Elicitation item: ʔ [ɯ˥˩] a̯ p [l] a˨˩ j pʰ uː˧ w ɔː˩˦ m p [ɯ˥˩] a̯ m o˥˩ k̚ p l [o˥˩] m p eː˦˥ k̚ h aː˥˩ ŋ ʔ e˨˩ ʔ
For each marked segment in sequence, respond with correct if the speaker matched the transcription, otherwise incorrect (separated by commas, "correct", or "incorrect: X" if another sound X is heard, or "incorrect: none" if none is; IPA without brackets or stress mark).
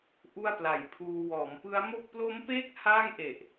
incorrect: u˥˩, correct, incorrect: ɯ˦˥, incorrect: o˦˥